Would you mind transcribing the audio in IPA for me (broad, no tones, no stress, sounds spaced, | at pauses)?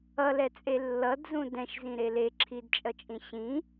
ʌ l ɛ t͡sʼ e lː ʌ d z ũ d ɛ̃ ʃ z ĩ ɾ e l e ǁʰ i d t͡ʃʼ ʌ t͡ʃʼ ĩ ɕ ĩ